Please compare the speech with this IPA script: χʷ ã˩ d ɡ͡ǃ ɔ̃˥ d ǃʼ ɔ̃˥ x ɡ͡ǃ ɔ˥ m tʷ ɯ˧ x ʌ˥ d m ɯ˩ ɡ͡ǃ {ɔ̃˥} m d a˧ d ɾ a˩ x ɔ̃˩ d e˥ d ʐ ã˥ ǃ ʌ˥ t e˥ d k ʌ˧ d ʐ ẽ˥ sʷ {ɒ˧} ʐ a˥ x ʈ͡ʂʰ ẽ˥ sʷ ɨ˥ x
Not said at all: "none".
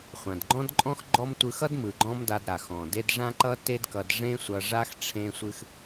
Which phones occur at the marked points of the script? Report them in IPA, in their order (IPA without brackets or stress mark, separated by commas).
ɔ̃˥, ʌ˧